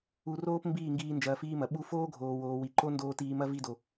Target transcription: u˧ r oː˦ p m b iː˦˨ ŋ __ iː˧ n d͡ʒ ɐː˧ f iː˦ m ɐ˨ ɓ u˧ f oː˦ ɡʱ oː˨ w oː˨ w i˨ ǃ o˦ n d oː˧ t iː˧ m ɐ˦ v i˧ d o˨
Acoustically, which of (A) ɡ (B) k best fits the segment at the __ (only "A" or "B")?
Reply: A